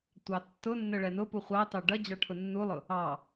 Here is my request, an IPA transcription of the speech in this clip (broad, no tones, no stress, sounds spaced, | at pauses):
tʷ ɑ tː ʊ nː ə ɭ ɛ n ʊ p u χʷ ɑ t ɑ ɖ ʌ d͡ʑ ɑ ʈʰ ʊ nː u lˠ ʊ | ɑ